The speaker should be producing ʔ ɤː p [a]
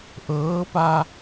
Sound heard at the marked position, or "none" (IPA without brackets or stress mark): a